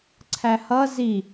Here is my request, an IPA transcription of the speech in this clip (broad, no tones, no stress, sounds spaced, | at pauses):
ǀʰ æ h ʌ z i